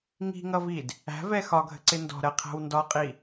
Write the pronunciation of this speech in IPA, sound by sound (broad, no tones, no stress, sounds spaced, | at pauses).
ŋ i̤ ŋ ʌ v i d | æ̤ v ɛ x ɒ ɡʱ ə̤ ǀ ɪ n d ɔ̤ ɾ ɜ qʰ æ̤ w n d ɒ qʼ i